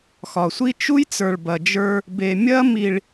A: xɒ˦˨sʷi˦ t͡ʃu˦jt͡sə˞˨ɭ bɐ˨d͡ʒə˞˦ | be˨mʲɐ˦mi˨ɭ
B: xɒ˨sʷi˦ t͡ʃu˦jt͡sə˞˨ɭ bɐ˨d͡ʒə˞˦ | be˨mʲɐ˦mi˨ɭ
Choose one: B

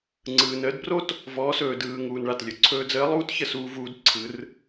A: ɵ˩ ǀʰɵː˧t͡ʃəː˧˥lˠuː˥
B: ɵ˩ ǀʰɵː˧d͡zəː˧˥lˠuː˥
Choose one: B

